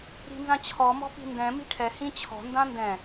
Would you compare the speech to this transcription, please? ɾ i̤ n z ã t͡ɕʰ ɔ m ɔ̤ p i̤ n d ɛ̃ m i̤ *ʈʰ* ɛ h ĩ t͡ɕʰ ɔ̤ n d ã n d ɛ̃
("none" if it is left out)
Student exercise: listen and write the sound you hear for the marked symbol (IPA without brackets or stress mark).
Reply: ʈʰ